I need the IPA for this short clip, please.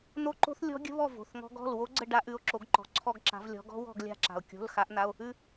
n̪ o˦˥ ǃ o̤˦˥ θ lʲ ɔ̤˦˥ ɡʲ ə̤˦˥ β ɔ˦˨ v o̤˩˧˩ θ ŋ ɔ̤˦˥ ɡ ɔ̤˩˧˩ l w o˦˥ ɡ͡ǀ ə˦˨ ɖ a˦˥ ʔ ʉ˩˧˩ o̯ ǁ o˨˦ ɡ ǃ ɔ̤˩ ǀʰ ɔ˦˨ ɡ ǁ a̤˨˦ v lʲ ɔ̤˨˦ ɡ ɔ̤˦˥ w ɔ̤˦˨ ɡ lʲ a̤˦˨ ǁ a̤˩ o̯ kʲ o̤˩˧˩ l x a˨˦ ʔ n̪ a˩˧˩ o̯ | ʉ˦˨

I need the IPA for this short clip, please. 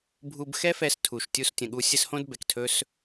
bʱ u˧ b x ɛ˦ f ɛ˧ s tʰ u˨ ʃ tʲ u˧ s tʲ ə̃˨ ɠ u˧ sʲ ə˦ s h õ˦ d b ɛ˨ k tʰ ɵ˦ s

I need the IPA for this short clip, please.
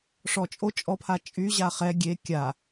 ʂ ɔ t͡ʃʼ o t͡ʃʼ ɔ pʰ a t͡ʃʼ y ʑ a χ ɛ ɡʲ e kʲ a

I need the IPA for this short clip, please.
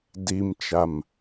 d i m t͡ʃ a m

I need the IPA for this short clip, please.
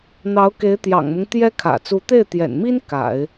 n̪ ɑ˧˥ ʊ̯ k e˧˥ ɪ̯ t̪ j ɑ̰˨˩ ŋ m ʊ˦ ŋ t̪ j ɛ˥ kʰ ä̰˨˩ t͡s u˧˥ t̪ e˥˩ ɪ̯ t̪ j ɛ̰˨˩ n m i˥ n k a̰˨˩˦ ɪ̯

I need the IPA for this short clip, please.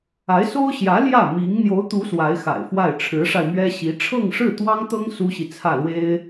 a˧˥ ɪ̯ s o˥ ʊ̯ ɕ j ä˧˥ l j ä˥˩ m i˧˥ ŋ n̪ j o˧˥ ʊ̯ t̪ u˧˥ s w a˧˥ ɪ̯ x a̰˨˩ ɪ̯ f w a˥˩ ɪ̯ ʈ͡ʂʰ ɻ̩˧˥ ʂ a˧ ɪ̯ m ɥ ɛ˥ ɕ i˧˥ ʈ͡ʂʰ ɤ˥˧ ŋ ʂ ɻ̩˥˩ t̪ w ɑ˥ ŋ t̪ ɤ˥ ŋ s u˥ ɕ i˨ t͡sʰ ä˥˩ l w e˥ ɪ̯

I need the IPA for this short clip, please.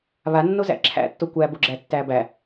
β a nː o z æ̰ ǁʰ æ̰ tː o kʷ æ b o ɡ͡ǁ æ tː æ b æ

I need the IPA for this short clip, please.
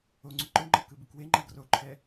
o ŋ͡ǀ u ǃ ɯ ŋ͡ǃ ʌ k ɯ b ɯ k w e ŋ͡ǃ a ɡ r o ǃʰ ɛ

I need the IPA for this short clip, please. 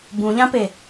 b ũ ʎ ã p e

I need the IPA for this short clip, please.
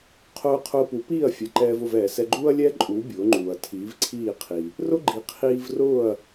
qʰ ʊː˧ qʰ ʊː˧ p u˩˥ p iː˥˩ ɐ̯ fʲ ɛ˩ ǃ ɛː˧ v ʊ˥˩ v ɛː˩ s ɛ˧ ɡ͡ǃ uː˥ ɐ̯ lʲ ɛː˥ ǃʼ uː˩˥ bʲ ʊː˩˥ ŋ͡ǃ uː˩ ɐ̯ tʰ iː˩˥ v ǀʰ iː˥˩ qʰ i˩ | r ʊ˥ ɡ͡ǃ i˩ qʰ iː˧ v r ʊː˥˩ ɐ̯

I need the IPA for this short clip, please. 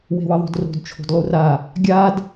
w e̤ w ʌ ðˤ o̤ d r o̤ d t͡ʃʰ o̤ d lˠ u r a | ɡʲ a d

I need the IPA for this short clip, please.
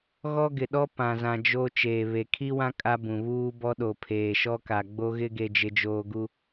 ɣ ɔ˦ ɡ ɪ˨ ɗ ɔ˦ p ã˨ z ã˨ d͡ʒ o˦ t͡ʃ eː˨ β e˨ kʰ i˦ w ã˦ kʼ a˦ b ũ˨ β uː˦ b ɔ˦ ɗ o˨ pʰ eː˨ ʃ ɔ˦ k a˨ ɡ͡b o˦ ɣ ɪ˦ ɡ e˦ d͡ʒ ɪ˦ d͡ʒ oː˦ ɡ u˦

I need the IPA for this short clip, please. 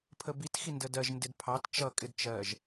pʰ ə b i t x i n d ə d ɜ ʒ n d ɪ d pʰ ɑ t t͡ʃ ʌ kʼ ɪ d t͡ʃ ɜ ʒ

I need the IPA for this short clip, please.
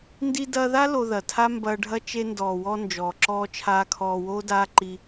n d i˧ d ɐː˧ ð a˦ l o˧ ð ɐ˨ tʰ a˦ m b ɐː˧ ɖʱ ɐ˦ t͡ʃ e˧ n d ɔː˨ w ɔ˧ n d͡ʒ ɔː˨ ǁ ɔː˧ t͡ʃʰ aː˧ kʰ ɔː˧ w oː˦ d aː˦ ǃ i˧

